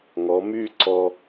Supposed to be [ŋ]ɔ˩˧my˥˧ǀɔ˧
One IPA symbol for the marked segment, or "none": ŋ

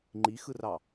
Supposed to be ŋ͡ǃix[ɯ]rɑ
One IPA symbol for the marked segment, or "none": ɯ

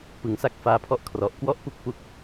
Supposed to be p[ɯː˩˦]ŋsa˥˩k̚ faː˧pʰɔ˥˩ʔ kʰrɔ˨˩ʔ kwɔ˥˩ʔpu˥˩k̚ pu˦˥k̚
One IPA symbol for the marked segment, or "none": ɯ˩˦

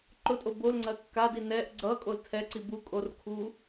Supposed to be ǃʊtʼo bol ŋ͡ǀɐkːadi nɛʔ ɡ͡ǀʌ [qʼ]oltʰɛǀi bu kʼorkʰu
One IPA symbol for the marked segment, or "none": kʼ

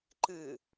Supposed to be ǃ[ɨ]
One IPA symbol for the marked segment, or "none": ɨ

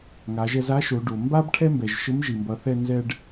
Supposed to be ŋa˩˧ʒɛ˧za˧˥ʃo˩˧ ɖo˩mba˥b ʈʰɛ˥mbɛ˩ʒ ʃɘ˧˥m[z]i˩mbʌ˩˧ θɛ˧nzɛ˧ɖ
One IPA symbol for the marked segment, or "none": ʒ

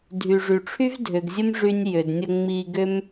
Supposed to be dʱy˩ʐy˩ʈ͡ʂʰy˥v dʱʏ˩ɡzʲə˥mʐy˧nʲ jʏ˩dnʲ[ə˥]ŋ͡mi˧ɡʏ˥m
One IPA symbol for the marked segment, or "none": ə˧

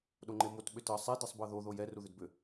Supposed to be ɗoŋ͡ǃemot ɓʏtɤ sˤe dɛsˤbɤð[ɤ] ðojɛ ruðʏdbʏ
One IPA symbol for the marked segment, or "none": o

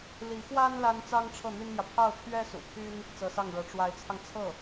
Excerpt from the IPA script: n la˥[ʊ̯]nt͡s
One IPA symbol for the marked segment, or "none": none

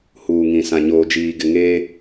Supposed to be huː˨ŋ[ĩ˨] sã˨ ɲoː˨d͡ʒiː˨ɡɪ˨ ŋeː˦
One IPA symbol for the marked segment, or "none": ĩ˨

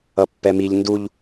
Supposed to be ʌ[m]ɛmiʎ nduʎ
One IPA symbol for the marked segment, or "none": pː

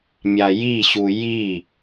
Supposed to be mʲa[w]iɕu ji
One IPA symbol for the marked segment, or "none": j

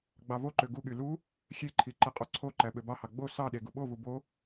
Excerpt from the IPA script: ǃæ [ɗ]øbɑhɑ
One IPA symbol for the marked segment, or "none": ɓ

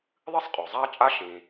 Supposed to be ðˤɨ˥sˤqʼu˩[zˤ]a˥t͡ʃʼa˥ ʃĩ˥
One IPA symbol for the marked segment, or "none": zˤ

